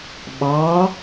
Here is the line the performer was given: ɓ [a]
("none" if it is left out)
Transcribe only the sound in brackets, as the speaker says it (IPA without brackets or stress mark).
ɑ